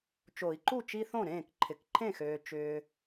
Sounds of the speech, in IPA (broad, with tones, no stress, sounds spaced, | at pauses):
t͡ʃ o˨˩˦ i̯ ǃ u˥˩ t͡ʃ i˦ θ õ˥˩ ɾ ẽː˥˩ k ǃʰ ɪ˩˥ k ǃʰ ẽ˥˩ x øː˨ t͡ʃ ʏː˨